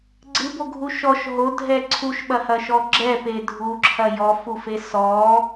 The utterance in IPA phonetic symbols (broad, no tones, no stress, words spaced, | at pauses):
ɡ͡ǀɨboɡʱu ʃɔʃ ɦodʱɛ ǀʰuʃɓɐhɐʃɔ ɡ͡ǁɛpe dʱuǁʰɐ jɔfufe sɔ